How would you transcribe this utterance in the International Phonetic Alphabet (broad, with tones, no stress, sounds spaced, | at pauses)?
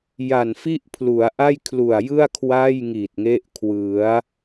j a˨˩ n f i˥˩ ʔ pʰ l u˩˦ a̯ ʔ a˥˩ j kʰ l u˨˩ a̯ j ɯ˥˩ a̯ kʰ w a˥˩ j ŋ i˨˩ t̚ ŋ e˦˥ ʔ kʰ w ɯ˩˦ a̯